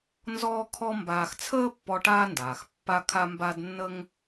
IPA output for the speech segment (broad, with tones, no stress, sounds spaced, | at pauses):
n z ɔː˥ kʰ ɔ˥ m b aː˨ x t͡sʰ əː˥ pː ɔ˦ ʈ aː˥ n d aː˩ x pː a˦ kʰ a˦ m b a˦ d nː ə˥ ŋ